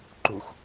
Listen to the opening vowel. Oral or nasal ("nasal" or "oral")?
oral